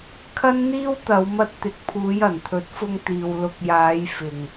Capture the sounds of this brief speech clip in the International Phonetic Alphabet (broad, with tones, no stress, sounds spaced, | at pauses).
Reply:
kʰ ɐ˥ n n̪ iː˥ w t̪ ɐ˨˧ w m ɐ˧ t̚ t̪ ɪ˨ k̚ pʰ uː˨˧ j ɐ˨˩ n t̪ʰ ɵ˨˥ t̚ f ʊ˧ ŋ t̪ iː˨ w l ʊ˨ k̚ j aː˨˧ j f ɪ˨ ŋ